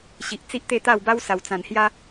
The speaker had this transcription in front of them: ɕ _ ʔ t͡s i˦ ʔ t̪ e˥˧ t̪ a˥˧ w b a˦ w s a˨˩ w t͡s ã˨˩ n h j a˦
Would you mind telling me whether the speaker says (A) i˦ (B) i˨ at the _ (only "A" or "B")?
B